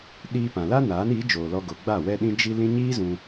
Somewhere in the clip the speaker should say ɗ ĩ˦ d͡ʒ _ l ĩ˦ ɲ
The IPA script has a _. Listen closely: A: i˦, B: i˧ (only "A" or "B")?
A